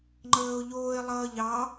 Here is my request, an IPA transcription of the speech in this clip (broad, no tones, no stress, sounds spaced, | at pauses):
ŋ͡ǃ əː ʊ̯ ʎ oː ɪ̯ lˠ ʌː ʎ ɑ